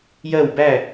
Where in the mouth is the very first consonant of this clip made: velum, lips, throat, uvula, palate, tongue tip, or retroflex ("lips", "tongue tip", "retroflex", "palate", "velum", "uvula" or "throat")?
palate